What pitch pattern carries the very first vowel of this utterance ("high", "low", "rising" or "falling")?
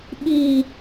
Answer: falling